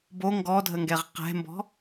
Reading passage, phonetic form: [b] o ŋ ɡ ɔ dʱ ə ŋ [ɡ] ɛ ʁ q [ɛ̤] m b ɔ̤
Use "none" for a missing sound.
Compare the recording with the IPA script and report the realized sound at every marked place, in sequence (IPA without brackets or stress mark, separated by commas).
b, ɡ, ɛ̤